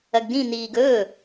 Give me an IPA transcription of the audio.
ɐ ɡ d ĩ n̪ iː ɡ ɵː

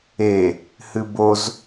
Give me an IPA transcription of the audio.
e | h ɨ b o z

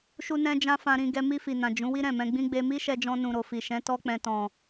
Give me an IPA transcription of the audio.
ʃ u˦ n ɛ̃˦ d͡ʒ ã˦ f ã˧ ɾ ĩ˧ ɡ ɛ˧ m i˧ f i˨ n ã˨ d͡ʒ ũ˨˦ w i˦ ɾ ɛ̃˦˨ m ɛ̃˧ ɡ͡b ĩ˦ ɡ͡b e˧ m i˦ ʃ ɛ˧ d͡ʒ ɔ̃˧ n ũ˨ ɾ o˨ f i˨ ʃ ɛ̃˨˦ t ɔ˧ k͡p ɛ̃˨ t ɔ̃˨

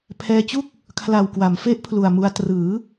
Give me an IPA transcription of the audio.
pʰ ɛː˧ t͡ɕ u˥˩ k̚ | kʰ l a˨˩ w k w a˩˦ m f e˦˥ ʔ pʰ l u˨˩ a̯ m u˧ a̯ t r ɯː˩˦

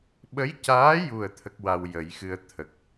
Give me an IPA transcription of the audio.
ɓ ə˧˥ j c aː˧˥ j u˨˩ ə̯ t̪ʰ ə˦˥ k̚ w a˧ w j ə˨˩˦ j x ɨ˧ ə̯ t̪ʰ ə˨˩ k̚

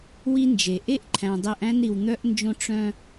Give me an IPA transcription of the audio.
w i˦ n d͡ʒ e˨ ʔ e˦ ʔ ǃʰ æ̃˨ dˤ e˦ ʔ æ̃˦ n ɾ i˨ w n̪ œ˦ ʔ n d͡ʒ õ˦ ʈ͡ʂ œ̃˦

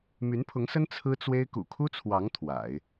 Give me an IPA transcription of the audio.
m y˧˥ n pʰ ʊ˧˥ ŋ s ə˥ n t͡sʰ ɹ̩˥ t͡s w e˥ ɪ̯ k ṵ˨˩ kʰ u˥ t͡sʰ w ɑ˧˥ ŋ t̪ʰ w a̰˨˩˦ ɪ̯

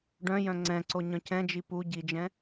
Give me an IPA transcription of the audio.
ɖ œ̃ j œ̃ ŋ͡ǀ ɛ̃ ǀ o ɲ œ̃ c ɛ̃ d͡ʒ i p u ɟ i d͡ʒ ɛ̃

